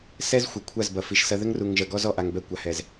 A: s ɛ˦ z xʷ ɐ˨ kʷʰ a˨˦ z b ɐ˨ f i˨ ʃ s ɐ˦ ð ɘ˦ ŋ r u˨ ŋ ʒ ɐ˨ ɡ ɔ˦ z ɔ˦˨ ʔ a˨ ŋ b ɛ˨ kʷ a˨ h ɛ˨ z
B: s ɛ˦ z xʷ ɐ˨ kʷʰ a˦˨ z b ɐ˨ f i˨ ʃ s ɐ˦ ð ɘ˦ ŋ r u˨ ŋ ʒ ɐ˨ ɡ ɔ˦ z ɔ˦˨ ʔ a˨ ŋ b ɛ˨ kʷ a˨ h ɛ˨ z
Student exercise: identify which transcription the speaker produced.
B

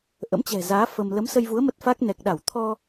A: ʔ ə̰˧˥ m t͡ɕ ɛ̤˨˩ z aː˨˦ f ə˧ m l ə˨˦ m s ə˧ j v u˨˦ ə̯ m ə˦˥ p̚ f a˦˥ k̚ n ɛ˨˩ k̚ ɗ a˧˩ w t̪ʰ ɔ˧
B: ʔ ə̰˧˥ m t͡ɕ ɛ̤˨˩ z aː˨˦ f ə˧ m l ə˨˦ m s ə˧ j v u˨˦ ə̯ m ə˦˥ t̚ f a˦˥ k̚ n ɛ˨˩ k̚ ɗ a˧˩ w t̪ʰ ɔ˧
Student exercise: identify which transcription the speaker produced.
B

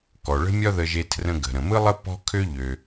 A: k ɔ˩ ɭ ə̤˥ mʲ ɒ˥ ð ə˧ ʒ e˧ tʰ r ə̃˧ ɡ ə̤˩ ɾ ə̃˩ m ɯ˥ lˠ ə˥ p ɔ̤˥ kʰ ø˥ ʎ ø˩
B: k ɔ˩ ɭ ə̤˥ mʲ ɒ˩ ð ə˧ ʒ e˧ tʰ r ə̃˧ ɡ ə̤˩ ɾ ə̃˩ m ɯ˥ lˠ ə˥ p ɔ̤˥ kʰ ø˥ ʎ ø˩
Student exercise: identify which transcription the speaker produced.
A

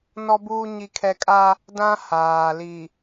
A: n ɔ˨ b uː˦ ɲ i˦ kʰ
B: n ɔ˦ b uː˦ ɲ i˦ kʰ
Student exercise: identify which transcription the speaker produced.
B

